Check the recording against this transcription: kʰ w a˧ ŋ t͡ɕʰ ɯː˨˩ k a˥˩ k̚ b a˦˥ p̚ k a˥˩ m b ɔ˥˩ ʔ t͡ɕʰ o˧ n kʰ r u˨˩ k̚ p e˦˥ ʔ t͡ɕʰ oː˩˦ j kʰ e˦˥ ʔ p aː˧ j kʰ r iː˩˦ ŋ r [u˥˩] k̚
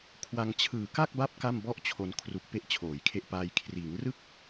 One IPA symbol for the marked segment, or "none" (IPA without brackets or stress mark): ɯ˥˩